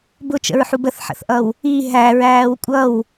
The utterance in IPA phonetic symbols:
b ʊ t͡ʃ ə̰ ɹ ħ u b ə θ ħ ə̰ θ ʔ ʌ w | i ɦ æ ɹ æː w kʷʼ ʌ w

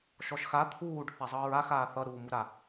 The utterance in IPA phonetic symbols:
ʃ ɔ ʃ x a t̪ʰ uː ɖ θ a zˤ ʌː ɹ a x aː θ ʌ ɾ uː m u ɾ a

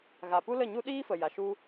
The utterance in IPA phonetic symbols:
ɣ a˨ p u˦ l ə˦˨ ɲ u˦ ɗ iː˦ f ə˨ j a˨ ʃ u˦

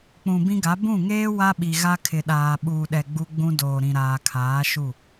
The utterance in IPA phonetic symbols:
k͡p ũ˨ b ĩ˦ ɡ a˨˦ b ũ˦˨ ŋ eː˦ w a˦ ɓ i˨ ɣ a˦ kʰ ɪ˨ ɗ aː˨ ɓ uː˨ ɗ ɛ˨ ɡ͡b u˦ ɡ͡b ũ˦ d oː˨ ɾ ĩ˨ ɾ aː˨ kʰ aː˨˦ ʃ u˦˨

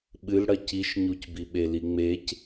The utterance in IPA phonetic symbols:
ɓ ɨ l ɽ ɐ c i ʃ ɲ u c b i ɓ e l i ŋ͡m e c

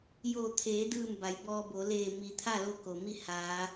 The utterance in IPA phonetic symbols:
j oː˧˩ t̪ʰ eː˩˧ d ɯː˧˩ m b a˩˧ j b ɔː˧ b o˩˧ l eː˧˩ m iː˩ t̪ʰ aː˥˨ l o˧˥ k oː˩ m i˥˨ h aː˩˧

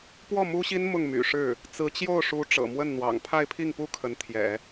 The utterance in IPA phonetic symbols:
p w ɔ˥˩ m u˥ ɕ i˥ n m ʊ˥˩ ŋ m y̰˨˩ ʂ ɻ̩˥˩ | t͡s ɹ̩˧˥ t͡ɕ j o˥˩ ʊ̯ ʂ u˧˥ ʈ͡ʂ ɤ̰˨˩ m w ə˥˩ n n̪ w ɑ̰˨˩ ŋ pʰ a˥˧ ɪ̯ pʰ i˥˩ ŋ p u˥ kʰ ə˧˥ n t̪ʰ j ɛ̰˨˩˦

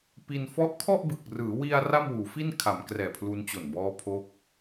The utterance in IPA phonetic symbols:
p i˧ n f ɔ˦˥ ʔ kʰ ɔ˥˩ ʔ b ɯ˨˩ k̚ r ɯː˩˦ w i˧ a̯ r a˥˩ m w uː˩˦ f i˥˩ n kʰ a˩˦ m k r ɛː˨˩ pʰ l u˧ n t͡ɕ o˨˩ n b ɔː˦˥ pʰ o˦˥ k̚

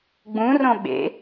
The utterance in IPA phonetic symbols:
ɡ͡b ũ r õ ɓ ḛ

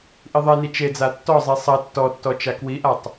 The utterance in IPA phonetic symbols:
ʔ i ðˤ e n i t͡ʃ e d͡z a tː ɔ zˤ i sˤ ɐ tː ɔ tː ɔ t͡ʃ a k w i ʔ a tˤ

